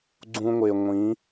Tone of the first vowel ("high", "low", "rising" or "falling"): high